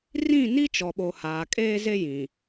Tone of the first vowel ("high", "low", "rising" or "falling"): falling